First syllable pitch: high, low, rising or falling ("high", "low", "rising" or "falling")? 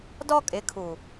high